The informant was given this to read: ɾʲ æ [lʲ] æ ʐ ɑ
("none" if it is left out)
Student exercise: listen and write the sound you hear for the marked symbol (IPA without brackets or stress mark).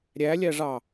lʲ